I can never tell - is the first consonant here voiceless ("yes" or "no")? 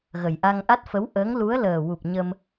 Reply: no